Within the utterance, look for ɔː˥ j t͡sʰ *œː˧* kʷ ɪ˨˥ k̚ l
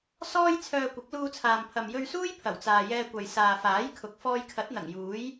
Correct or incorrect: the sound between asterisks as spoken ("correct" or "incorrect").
correct